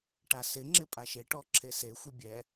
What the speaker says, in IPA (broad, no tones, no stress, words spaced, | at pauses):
ʈasɪŋ͡ǁɪ pʼaʃeʈɔ ǁʰesexʷɪ bʲɛ